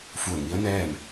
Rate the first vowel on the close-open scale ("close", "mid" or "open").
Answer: close